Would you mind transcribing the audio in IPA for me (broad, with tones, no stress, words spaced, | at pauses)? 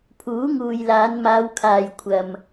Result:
pʰuː˨˥ŋuː˨jlaː˨˧n maː˨˧wkʰaː˨jkʷʰɐ˨m